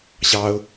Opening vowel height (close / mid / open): open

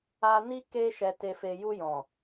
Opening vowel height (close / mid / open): open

